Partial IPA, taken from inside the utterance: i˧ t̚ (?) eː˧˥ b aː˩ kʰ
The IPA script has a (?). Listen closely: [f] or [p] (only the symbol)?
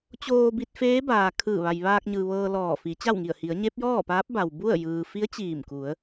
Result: f